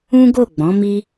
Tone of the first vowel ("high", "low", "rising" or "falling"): high